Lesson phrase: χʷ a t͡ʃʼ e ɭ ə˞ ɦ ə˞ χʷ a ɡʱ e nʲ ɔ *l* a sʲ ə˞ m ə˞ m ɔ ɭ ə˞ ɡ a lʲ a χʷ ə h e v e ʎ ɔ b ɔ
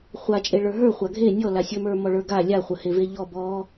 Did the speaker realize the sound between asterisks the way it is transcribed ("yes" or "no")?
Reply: yes